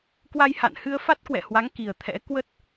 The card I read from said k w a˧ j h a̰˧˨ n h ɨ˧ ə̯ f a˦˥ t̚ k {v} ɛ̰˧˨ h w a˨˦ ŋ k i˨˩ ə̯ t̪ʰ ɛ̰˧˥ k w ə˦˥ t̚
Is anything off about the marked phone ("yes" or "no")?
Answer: yes